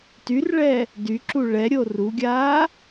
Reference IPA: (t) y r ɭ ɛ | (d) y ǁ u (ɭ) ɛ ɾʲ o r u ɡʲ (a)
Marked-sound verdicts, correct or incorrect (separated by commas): correct, correct, correct, incorrect